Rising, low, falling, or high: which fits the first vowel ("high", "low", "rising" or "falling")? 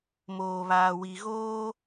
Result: low